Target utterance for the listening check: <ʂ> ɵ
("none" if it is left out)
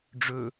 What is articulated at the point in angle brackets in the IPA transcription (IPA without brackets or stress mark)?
ɖ͡ʐ